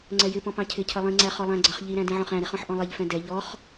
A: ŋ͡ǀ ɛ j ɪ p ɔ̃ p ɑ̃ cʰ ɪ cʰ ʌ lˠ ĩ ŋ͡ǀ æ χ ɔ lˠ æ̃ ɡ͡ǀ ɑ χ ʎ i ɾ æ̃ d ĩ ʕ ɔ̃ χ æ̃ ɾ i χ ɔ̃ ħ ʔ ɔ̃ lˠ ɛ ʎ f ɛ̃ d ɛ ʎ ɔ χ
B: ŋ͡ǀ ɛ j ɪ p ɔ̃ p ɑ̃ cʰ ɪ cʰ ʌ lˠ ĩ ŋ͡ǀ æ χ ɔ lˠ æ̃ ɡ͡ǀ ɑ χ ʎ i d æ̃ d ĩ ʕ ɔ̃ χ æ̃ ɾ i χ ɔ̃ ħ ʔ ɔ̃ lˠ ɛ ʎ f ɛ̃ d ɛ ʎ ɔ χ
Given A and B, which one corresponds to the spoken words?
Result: A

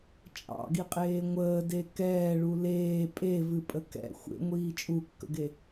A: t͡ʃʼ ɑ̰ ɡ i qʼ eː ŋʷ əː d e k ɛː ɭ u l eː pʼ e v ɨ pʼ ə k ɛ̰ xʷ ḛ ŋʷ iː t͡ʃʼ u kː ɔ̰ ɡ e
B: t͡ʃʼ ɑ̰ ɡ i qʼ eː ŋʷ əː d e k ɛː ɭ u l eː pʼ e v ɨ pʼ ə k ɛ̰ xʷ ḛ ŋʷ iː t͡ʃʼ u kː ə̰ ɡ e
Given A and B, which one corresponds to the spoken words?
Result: B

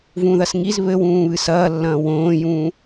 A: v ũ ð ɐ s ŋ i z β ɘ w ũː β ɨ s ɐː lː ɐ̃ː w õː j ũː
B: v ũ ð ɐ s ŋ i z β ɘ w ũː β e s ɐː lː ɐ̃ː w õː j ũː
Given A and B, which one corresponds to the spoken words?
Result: A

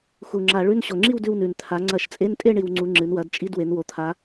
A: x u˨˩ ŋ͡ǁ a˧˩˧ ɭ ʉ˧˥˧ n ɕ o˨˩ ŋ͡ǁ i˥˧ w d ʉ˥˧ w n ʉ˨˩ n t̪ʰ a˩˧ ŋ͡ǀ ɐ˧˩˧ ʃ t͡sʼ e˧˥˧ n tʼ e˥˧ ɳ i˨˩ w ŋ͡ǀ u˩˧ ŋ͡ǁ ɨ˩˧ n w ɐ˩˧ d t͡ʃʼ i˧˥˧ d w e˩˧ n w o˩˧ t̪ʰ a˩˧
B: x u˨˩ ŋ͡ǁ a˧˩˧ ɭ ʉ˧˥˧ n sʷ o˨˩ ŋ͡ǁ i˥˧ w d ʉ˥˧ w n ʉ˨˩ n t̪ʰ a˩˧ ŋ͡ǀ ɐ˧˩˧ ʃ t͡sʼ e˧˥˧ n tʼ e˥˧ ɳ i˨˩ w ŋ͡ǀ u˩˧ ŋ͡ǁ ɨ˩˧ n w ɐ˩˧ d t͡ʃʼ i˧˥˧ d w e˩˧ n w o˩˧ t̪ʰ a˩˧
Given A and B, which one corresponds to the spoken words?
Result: A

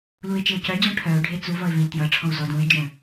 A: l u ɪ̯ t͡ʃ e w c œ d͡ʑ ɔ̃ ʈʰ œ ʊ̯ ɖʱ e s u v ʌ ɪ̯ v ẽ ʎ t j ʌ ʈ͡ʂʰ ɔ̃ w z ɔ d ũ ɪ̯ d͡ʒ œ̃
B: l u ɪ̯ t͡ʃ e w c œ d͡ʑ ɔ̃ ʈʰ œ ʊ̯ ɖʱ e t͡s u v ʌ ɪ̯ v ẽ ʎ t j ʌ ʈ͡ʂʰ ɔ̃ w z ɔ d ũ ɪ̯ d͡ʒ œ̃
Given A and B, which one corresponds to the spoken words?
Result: B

